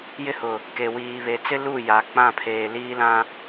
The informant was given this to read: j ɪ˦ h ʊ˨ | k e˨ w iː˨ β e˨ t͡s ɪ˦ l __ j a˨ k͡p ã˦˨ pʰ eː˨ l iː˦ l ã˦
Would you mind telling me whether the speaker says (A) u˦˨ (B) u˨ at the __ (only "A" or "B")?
A